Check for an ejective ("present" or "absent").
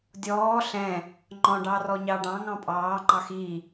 present